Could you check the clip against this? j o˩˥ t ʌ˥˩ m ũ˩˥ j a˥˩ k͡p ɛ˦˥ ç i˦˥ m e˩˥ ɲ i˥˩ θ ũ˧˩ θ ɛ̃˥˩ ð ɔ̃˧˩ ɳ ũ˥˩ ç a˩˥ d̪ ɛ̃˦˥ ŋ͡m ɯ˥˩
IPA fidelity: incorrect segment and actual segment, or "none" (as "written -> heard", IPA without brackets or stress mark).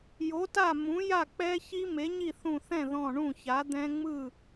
ʌ˥˩ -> a˥˩